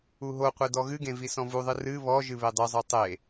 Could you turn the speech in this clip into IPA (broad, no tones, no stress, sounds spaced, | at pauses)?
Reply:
u ɦ o qʷ e d ɔ ɣ ɨ ɡ ẽ v i s ɔ̃ v u ðˤ ɨ r ɨ β ɔ ʒ ɨ β e dˤ ɨ zˤ o tˤ e